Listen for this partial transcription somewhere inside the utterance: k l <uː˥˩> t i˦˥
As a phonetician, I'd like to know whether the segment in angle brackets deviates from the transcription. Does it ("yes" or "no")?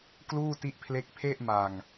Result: no